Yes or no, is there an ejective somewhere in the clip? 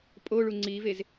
yes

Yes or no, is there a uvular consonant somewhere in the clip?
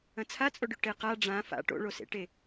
yes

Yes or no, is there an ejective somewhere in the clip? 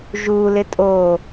yes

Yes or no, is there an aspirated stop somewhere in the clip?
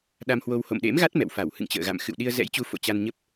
no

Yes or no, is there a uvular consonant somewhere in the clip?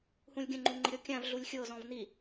no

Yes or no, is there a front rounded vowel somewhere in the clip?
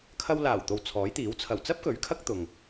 no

